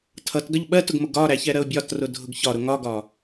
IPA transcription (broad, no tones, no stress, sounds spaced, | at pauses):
tʰ ʌ t ɡ ʌ ʎ ɓ ɜ t ʊ ɡ m ʊ ɡ ɒ ɾ æ ç ɛ ɾ ɜ ʊ̯ bʲ ɒ t r ʊ dʱ ʊ ɡ ç ɒ ɾ ʊ ŋ ɒ ɡ ɒ